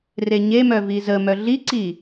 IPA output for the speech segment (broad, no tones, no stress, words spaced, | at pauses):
reɲemœ vizəmœ ɮiǀi